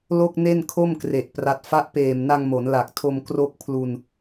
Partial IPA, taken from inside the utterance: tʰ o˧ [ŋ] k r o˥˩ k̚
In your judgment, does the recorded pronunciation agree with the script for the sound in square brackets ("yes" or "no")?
no